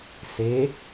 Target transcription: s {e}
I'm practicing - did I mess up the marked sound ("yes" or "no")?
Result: no